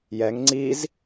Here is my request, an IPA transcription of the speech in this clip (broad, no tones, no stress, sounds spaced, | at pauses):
j ɛ ŋ ŋ͡ǀ i z